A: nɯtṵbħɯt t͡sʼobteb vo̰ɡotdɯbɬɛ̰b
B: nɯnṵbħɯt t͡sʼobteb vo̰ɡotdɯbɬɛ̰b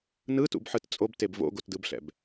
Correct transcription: A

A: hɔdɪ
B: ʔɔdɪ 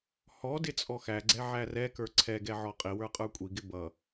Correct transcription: A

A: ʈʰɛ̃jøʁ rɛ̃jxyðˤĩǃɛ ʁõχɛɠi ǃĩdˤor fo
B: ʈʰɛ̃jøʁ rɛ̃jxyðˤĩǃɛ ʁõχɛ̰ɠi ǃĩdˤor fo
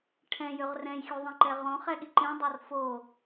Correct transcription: A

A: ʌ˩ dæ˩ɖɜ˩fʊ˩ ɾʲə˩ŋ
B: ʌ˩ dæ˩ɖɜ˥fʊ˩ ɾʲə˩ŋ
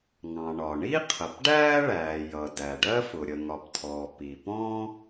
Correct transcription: B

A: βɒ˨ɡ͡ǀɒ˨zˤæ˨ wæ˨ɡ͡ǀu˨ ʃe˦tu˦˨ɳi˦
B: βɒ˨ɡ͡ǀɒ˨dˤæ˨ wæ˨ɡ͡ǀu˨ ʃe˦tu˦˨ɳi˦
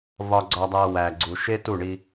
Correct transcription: B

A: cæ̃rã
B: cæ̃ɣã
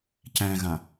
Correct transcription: B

